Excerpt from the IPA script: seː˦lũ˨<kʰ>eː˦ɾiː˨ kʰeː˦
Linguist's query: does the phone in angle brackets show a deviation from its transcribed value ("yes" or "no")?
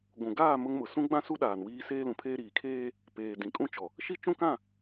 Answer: yes